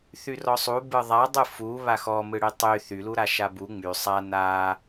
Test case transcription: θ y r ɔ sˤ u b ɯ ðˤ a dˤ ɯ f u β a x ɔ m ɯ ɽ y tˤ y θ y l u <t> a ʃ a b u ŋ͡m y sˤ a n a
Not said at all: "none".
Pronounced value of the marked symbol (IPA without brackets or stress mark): ɾ